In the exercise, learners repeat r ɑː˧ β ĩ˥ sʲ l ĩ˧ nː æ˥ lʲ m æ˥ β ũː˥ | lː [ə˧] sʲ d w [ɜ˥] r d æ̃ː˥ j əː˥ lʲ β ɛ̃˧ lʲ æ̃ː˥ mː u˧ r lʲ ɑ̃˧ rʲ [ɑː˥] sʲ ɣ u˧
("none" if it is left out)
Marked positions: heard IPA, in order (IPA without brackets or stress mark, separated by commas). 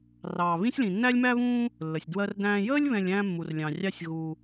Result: ə˧, ɜ˥, ɑ˥